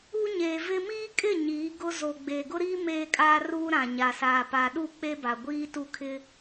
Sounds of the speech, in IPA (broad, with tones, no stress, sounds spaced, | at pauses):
u˦ ɲ eː˨ v ɪ˦ m iː˦ kʼ ɪ˦˨ ɲ iː˨˦ ɡ ʊ˦ z o˨ ɡ͡b e˨ ɡ ʊ˦ ɾ iː˦ m eː˦ kʼ aː˦ r uː˦ ɾ ã˨ ɲ a˨ s aː˨ p a˨ ɗ u˦˨ k͡p e˦ b a˨ ɡʷ iː˦ t u˦ kʰ ɪ˦